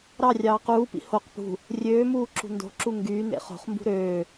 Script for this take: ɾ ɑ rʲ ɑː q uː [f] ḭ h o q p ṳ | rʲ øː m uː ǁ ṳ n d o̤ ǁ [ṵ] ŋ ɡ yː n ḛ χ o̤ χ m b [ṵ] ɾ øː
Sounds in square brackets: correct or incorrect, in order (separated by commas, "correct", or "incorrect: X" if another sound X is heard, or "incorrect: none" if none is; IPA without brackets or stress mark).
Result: incorrect: p, incorrect: u, incorrect: ṳ